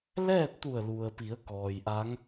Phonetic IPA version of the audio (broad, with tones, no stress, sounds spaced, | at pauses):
l ɛː˥˨ t̚ t̪ u˧˩ ə̯ l u˩ ə̯ p i˩˧ ə̯ k ɔː˩ j ʔ a˧˥ ŋ